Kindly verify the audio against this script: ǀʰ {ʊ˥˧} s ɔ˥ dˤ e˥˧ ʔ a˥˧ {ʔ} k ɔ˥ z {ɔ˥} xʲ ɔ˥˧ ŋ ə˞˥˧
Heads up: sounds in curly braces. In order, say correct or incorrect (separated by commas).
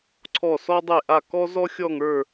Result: incorrect, incorrect, correct